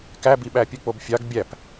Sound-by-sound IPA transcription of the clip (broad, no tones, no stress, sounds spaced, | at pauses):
k æ b i ɓ æ pʲ ɯ k͡p o b fʲ ɑ ɡ bʲ æ p